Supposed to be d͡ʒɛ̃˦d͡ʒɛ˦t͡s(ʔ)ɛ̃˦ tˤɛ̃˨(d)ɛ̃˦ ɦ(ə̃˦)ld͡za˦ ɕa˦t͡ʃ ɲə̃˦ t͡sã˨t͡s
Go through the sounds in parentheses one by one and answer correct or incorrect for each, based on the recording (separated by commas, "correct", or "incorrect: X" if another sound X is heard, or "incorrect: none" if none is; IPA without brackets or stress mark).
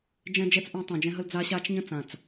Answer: correct, incorrect: d͡ʒ, incorrect: ə˦